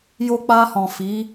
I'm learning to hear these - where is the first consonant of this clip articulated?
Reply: palate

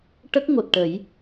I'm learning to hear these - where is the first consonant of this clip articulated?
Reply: retroflex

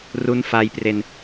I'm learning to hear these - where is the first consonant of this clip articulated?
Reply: tongue tip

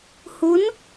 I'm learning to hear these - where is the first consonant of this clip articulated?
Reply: throat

